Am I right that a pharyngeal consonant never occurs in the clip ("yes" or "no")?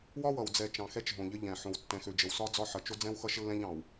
no